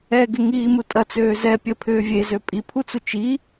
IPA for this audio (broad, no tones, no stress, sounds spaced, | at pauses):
ɛ ɡ ɪ ŋ iː m u tʼ ɐ t͡s øː z ɛ pʲ ə pʰ ʏː vʲ e z ø pʼ i pʰ u t͡s u t͡ʃ i